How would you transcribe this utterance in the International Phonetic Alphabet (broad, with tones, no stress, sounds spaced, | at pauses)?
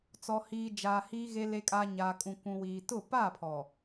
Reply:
t͡s ɔ˨ h iː˨ d͡ʒ aː˨ h iː˨ ɣ e˨ l e˨ kʼ aː˨ ɲ aː˨ kʼ ũ˨ kʷ ũ˨ w iː˨ t ʊ˦˨ p aː˦˨ pʰ ɔ˨